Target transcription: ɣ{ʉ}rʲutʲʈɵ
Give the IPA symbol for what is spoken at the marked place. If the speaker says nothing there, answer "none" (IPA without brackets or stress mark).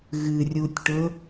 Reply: ɨ